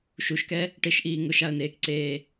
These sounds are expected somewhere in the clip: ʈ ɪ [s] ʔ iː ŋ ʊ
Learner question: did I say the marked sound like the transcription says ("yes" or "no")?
no